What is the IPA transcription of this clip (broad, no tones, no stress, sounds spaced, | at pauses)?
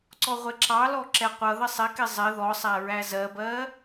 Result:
ǀ ɔ ʁʷ ɛ ǁ ɑ l ɔ ǁ ɛ qʷ ʌ ð ə sˤ ɪ k ɪ zˤ ɪ ð ɔ sˤ æ ɹ æ z ɜ b ɜ